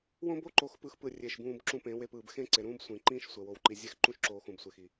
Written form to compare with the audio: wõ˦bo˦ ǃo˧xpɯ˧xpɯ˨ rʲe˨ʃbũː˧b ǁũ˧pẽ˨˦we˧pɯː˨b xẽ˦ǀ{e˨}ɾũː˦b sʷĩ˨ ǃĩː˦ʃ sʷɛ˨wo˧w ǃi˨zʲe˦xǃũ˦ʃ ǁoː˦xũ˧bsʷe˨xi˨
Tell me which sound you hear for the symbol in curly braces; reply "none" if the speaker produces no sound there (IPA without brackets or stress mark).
e˨